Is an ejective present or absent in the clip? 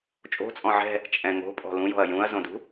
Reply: present